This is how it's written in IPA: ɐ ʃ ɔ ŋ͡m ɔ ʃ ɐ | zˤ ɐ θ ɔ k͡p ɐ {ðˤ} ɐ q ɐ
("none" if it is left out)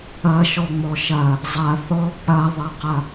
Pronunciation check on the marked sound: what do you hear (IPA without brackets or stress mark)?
ðˤ